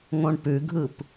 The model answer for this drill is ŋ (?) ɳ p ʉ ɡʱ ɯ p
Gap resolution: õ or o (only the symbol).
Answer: õ